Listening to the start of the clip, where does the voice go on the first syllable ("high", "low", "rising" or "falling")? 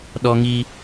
high